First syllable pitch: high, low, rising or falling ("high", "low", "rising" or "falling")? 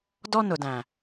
high